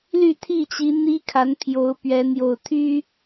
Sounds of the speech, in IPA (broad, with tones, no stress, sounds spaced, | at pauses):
l y˥˨ t̪ʰ i˥˨ t͡ɕ i˨˦ n̪ i˦ kʰ a˨˦ n pʰ j o˨˦ ʊ̯ p ɥ ɛ˨˦ n̪ j o˨˩ ʊ̯ t̪ʰ y˦